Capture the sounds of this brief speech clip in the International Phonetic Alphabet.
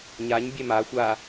ɲ a ɲ bʲ ɛ m a xʷ a

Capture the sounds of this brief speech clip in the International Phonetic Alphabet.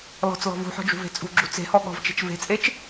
l ɔ̤ t͡s l ɔ̤ v ṳ ħ ɔ̤ d͡ʒ ṳ v e̤ t͡sʼ ṳ ɡ͡ǁ ṳ t͡s e̤ h ɔ ɠ ɔ̤ v t͡ʃ e̤ t͡ʃ v e̤ t͡sʼ e t͡ʃ

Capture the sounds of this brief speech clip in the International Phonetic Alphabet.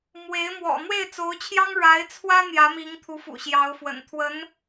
m w e˧˥ ɪ̯ m w ɔ̰˨˩ n̪ w e˥˩ ɪ̯ t͡s o˧˥ ʊ̯ t͡ɕʰ j ɑ˥ ŋ ɻ a˧˥ ɪ̯ t͡sʰ w ä˥ n̪ j ä˧˥ m i˧˥ ŋ t̪ʰ u˧˥ f ṵ˨˩ ɕ j ɑ˧˥ ʊ̯ f w ə̰˨˩ n t̪ʰ w ə˧˥ n

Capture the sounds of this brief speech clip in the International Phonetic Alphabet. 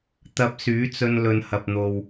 t̪ ɐ˧ p̚ s yː˨˥ t͡s ɵ˧ n l ɵ˨˧ n h ɐ˨ p̚ n̪ o˨ w

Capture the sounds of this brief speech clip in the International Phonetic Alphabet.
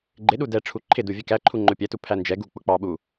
ɡ͡ǃ ɪ ɗ u d ɛ ʈ͡ʂʰ u ǃʰ ɪ d u vʲ ɛ k æ ǃʰ u ŋ͡ǃ ʊ pʲ ɛ t u pʰ æ n d͡ʒ ɛ ɡ u k͡p ʊ k͡p ɑ ɓ u

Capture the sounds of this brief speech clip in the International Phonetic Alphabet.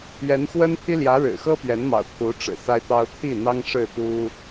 ɥ ɛ˧˥ n x w ə˥ n pʰ i˥ l j ä˧˥ ɻ ɻ̩˨˩ x ɤ˥ p ɥ ɛ˧˥ n m ɑ̰˨˩ ʊ̯ kʰ u˧˥ ʈ͡ʂ ɻ̩˨˩ s a˥ ɪ̯ t̪ ɑ˥ ʊ̯ t̪ʰ i˥˩ n̪ ɑ˥ ŋ ʂ ɻ̩˥˩ t̪ u˥

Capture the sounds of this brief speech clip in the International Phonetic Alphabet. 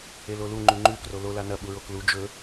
e l o l u ŋ͡ǃ ʉ ŋ͡ǃ ʉ k r o l o l a n ɐ ɓ u ɹ o k l u d͡ʒ ɵ

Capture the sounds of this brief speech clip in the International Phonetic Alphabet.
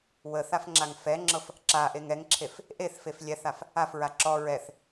w ə θ a f ŋ͡ǁ a ŋ f ɛ ŋ͡ǁ ɤ f | ǁ a ʔ e ŋ ɛ ŋ ǁʰ e f | ʔ e θ f e f lʲ ɛ θ a f | a f ɹ a ǁ ɔ ɹ ɛ θ

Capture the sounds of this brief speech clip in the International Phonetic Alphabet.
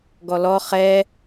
ɡ ɔ l ɔ χ ɛ

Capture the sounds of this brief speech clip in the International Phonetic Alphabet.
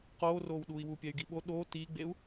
q oː r oː w ɗ uː i̯ w u pʲ ɛ y̯ ɡ i ɓ o ɗ oː t iː ɡ͡b e u̯

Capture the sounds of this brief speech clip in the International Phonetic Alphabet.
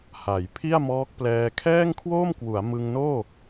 h a˩˦ j pʰ i˥˩ a̯ m ɔː˦˥ k̚ p l ɛː˧ kʰ ɛː˥˩ ŋ kʰ w oː˥˩ m k w u˩˦ a̯ m ɯ˧ ŋ n oː˥˩

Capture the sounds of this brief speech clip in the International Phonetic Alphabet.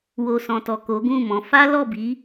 w o˨ s ɔ̃˨ t ɔ˨ k o˨˦ ɡ ũ˦˨ m ɔ̃˨˦ f a˦ l ɔ˦˨ b i˨˦

